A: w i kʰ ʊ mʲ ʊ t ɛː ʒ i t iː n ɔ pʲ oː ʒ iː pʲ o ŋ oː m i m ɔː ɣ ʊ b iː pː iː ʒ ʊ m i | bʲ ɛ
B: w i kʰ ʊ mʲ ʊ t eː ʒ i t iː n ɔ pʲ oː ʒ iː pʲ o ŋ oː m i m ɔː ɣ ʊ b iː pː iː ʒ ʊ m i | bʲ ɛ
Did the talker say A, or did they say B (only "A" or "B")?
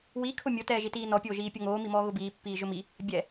A